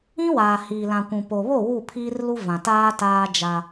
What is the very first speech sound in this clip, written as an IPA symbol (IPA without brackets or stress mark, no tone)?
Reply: ĩ